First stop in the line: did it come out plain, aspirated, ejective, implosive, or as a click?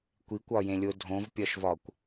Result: plain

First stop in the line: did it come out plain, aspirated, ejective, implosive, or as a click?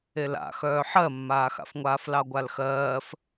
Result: plain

